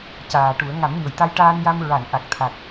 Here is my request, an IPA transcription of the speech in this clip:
caː˨˩ʈu˨˩˦ə̯ ŋa˨˩˦mɲo˨˩˨jt̪a˧j ʈaː˧nja˧m ɹa˨˩˨nʔa˨˩k̚ t̪ʰa˨˩k̚

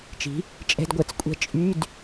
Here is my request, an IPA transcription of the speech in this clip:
t͡ʃi̤˩˥ | t͡ʃʼɛ̤˧˥˧dɡʷɛ˩˥t͡skʷʼɛ̤˥˩ t͡ʃʼy˧˥˧d

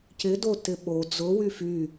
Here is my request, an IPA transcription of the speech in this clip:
cɪdotɪ ɓo d͡zʊwy fy

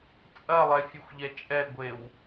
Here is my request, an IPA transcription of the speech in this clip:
t͡sʼɐlˠɛfʲexʷʎɛ t͡ʃʼɛɡʷew

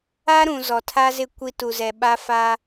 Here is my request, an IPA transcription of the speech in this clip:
a˦ɾũ˨ zɔ˨tʰa˦zɪ˦˨ kʷi˦tu˨ zɛ˨ɓa˦fa˦

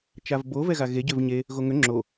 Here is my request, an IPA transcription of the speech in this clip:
t͡ʃavbo vɛɣaɣe ɟøvɲe | ɣoŋø ŋ͡ǁo

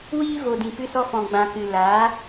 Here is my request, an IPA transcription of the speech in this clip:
wiː˦vo˨dĩ˨ pɨ˧sɔ˧fɔ̃˨ ɡ͡bã˨kɨ˨ laː˨˦

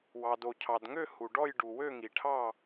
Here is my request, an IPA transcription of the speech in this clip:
wɑ˩do˩cʰɑ˩dŋø˥˨ hu˩ɖɔ˥˨j ɖu˩ wø˥˨ŋi˩ʈʰɑ˥˨

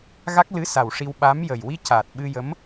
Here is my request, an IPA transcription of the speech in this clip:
ɣa˦˥k̚lɨ˧˥sa˨˩w ʂi˧wɓa˧˥mjə˨˩j wi˧ ca˨˩t̚ɓɨ˧jə˧˥m

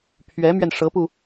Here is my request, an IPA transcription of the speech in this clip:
pʰɥɛ˧˥mɥɛ˧nʂɤ˧˥pu˧

